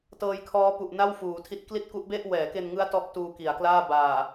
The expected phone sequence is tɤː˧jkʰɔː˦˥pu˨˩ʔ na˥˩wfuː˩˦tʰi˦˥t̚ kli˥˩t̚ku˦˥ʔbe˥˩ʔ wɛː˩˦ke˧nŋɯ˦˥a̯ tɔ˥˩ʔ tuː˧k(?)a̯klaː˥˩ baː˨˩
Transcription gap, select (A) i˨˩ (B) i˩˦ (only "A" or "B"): B